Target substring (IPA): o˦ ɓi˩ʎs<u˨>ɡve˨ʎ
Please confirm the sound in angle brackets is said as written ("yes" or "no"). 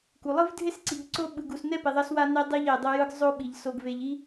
no